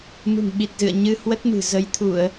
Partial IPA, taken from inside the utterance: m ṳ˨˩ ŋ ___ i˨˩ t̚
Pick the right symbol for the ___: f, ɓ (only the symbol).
ɓ